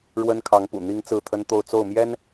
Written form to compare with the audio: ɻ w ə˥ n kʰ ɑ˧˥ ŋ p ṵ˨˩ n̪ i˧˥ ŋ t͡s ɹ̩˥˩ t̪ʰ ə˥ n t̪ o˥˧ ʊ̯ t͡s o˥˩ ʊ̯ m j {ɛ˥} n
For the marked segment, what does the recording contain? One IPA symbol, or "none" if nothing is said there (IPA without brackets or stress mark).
ɛ˥